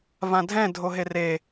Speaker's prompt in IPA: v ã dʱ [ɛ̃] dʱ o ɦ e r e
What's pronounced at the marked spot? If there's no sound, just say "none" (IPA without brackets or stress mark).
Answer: ɛ̃